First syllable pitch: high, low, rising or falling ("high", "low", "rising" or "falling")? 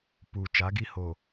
low